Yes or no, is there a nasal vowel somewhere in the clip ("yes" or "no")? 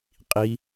no